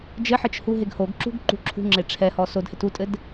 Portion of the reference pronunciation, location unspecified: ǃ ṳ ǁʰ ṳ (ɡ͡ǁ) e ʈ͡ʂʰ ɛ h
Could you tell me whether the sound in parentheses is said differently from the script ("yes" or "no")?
yes